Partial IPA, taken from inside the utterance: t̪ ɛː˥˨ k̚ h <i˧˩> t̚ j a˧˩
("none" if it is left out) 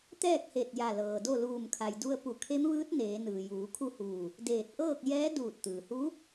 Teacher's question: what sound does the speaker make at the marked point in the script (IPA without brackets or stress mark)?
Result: e˧˩